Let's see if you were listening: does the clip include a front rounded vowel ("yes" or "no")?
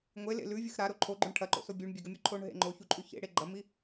no